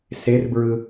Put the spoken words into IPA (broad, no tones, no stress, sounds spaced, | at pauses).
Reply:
s e r b ɹ ɯ